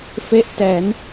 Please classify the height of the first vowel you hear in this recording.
mid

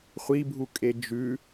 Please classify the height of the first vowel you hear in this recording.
high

